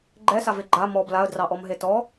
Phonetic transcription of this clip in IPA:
ɡ͡ǃ ɛ s a v e ɡ͡ǃ a m ɔ b l a ə̯ d r ɑ ʔ ɔ m ɦ e t ɔ

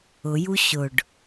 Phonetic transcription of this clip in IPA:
ʊ j u ɕ ʊ ɖ

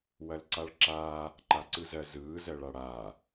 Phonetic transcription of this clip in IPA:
w ɐ l ǀ a ɭ ǁ aː | ǃ a ǀ ɯ z ɜ z ɯː z ɜ ɭ a ɽ aː

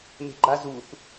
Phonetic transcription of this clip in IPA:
m e̤ ɡ͡ǃ a z u θ

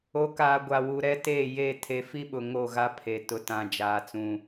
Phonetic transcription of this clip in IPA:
o˨˦ k aː˨ ɡʷ a˨ w u˨ ɾ ɛ˦ t eː˦˨ j e˦˨ tʰ e˨˦ f i˦ ɓ ʊ˨ ŋ o˦˨ ɣ a˦ pʰ e˨ t ʊ˨ t ã˨ d͡ʒ aː˨ t͡s ũ˨

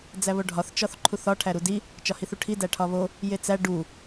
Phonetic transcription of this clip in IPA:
d͡z æ β o ɖʱ ɒ θ t͡ʃ ɒ θ ǃʰ u θ ɒ ʈʰ æ ɾ u d i | t͡ʃ ɒ h i θ u ʈʰ i d æ ʈʰ ɒ β o | j e t͡s æ ɖ u

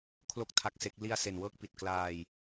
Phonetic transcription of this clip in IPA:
kʰ l o˦˥ k̚ tʰ a˦˥ k̚ s e˦˥ k̚ l i˧ a̯ s e˨˩ n w ɤː˥˩ k̚ p i˨˩ t̚ k l aː˧ j

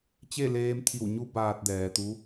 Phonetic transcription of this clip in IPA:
t͡ɕ e˥˨ l eː˧ m t̪ʰ i˧˩ w ɲ u˧ b aː˧ t̚ d ɛː˩ t̪ u˧˥

